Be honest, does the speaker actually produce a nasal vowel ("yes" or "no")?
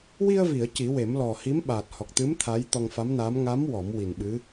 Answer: no